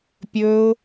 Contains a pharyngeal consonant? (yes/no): no